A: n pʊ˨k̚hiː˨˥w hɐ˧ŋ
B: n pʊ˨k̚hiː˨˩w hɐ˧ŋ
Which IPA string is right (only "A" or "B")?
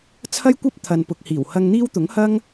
B